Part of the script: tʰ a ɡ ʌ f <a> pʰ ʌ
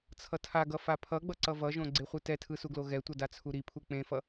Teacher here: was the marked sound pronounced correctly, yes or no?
yes